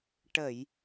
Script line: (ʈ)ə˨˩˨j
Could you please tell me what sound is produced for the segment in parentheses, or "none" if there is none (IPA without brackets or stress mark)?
ʈ